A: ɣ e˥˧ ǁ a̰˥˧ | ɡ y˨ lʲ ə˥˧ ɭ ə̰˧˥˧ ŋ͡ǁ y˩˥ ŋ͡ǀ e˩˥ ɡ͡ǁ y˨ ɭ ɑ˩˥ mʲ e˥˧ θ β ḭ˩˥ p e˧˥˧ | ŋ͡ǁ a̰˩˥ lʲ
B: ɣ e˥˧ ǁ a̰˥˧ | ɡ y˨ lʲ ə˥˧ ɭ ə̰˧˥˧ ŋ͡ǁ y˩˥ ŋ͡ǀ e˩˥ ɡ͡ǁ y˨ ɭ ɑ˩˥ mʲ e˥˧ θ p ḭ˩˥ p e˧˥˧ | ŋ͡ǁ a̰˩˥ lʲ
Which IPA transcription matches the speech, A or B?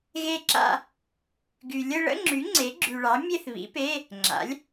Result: A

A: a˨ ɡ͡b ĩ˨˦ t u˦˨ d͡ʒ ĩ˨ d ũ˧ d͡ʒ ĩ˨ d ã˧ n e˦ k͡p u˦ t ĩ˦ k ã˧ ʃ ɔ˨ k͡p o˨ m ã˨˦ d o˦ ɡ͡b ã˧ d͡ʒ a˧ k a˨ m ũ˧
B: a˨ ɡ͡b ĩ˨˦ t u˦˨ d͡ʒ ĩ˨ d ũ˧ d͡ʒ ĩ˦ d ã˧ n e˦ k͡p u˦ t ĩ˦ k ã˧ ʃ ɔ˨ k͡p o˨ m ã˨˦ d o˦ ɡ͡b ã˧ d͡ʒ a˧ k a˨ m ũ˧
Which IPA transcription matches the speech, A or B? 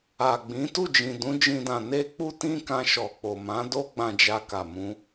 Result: B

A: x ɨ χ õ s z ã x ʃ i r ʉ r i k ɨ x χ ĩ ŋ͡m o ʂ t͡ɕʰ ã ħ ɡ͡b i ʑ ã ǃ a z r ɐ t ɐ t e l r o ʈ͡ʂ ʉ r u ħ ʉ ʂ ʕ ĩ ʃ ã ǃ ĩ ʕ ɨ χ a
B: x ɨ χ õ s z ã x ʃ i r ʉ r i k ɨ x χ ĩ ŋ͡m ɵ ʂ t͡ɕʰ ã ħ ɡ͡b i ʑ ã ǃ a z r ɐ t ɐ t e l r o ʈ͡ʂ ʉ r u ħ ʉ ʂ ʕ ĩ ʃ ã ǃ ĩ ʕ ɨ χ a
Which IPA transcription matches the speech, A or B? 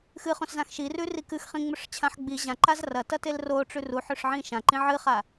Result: B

